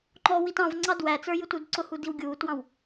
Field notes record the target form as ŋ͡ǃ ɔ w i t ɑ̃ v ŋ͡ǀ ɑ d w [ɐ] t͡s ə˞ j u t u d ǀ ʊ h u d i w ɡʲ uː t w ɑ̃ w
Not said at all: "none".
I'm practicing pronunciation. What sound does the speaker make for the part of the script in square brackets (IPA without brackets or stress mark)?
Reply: æ